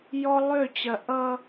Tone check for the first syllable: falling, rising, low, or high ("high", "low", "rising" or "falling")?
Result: high